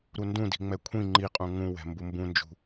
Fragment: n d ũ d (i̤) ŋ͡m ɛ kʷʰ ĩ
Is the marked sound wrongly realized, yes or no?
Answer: no